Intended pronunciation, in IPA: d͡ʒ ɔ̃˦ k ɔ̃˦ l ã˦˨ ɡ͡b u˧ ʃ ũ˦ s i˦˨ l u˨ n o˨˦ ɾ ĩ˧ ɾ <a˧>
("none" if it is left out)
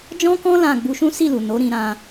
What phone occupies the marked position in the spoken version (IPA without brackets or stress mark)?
ã˧